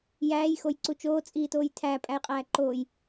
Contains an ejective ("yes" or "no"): yes